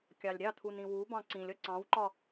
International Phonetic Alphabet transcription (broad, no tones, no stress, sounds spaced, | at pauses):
kʲ ɑ lʲ ɾʲ ɑ t̪ʰ u n ĩ w u b ɑ̃ ǀ ĩ lʲ ʌ ǀ ɑ̃ w ǃ ɒ